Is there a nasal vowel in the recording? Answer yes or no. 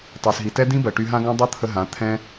yes